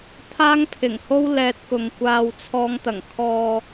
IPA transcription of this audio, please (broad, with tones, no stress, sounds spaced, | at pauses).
t̪ʰ aː˥ ŋ pʰ ɪ˨˩ ŋ h o˥ w l ɛː˧ t̚ k ʊ˨ ŋ kʷ aː˧ w t͡sʰ ɔː˧ ŋ t̪ ɐ˨˩ ŋ kʰ ɔː˨